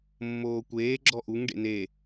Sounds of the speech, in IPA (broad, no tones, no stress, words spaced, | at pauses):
mːoːkʷeːɡ͡ǁɔ ʔuŋɖḛ ne